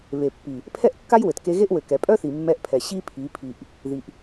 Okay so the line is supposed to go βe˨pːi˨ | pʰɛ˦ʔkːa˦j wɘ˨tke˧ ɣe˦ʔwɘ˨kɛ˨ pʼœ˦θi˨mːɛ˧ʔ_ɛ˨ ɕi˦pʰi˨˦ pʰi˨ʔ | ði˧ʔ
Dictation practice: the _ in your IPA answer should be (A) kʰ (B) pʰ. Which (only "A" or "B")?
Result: B